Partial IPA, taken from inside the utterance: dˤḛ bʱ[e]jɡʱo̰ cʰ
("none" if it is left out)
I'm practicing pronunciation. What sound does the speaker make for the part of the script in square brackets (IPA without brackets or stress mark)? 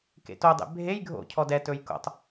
e